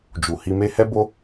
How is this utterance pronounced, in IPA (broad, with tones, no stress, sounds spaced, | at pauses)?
d͡ʒ u˨ h i˧ m e˦ h ɛ˦ b o˦